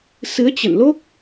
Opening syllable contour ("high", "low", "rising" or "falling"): rising